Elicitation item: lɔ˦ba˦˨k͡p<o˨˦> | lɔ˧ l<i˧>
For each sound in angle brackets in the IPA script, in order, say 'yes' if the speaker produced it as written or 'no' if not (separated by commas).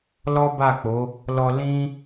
yes, no